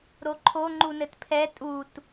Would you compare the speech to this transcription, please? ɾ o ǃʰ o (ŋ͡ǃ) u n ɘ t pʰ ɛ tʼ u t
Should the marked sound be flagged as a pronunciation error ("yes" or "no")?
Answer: no